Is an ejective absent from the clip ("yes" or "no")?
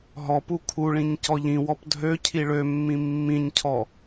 yes